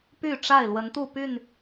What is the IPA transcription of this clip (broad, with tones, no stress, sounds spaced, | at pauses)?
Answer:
p y˥˨ ʈ͡ʂ a˥˨ ɪ̯ l w ə˨˦ n t̪ u˥˨ p y˥˨ n